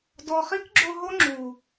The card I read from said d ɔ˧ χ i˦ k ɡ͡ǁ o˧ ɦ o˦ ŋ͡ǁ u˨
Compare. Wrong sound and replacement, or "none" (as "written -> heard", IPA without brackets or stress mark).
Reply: none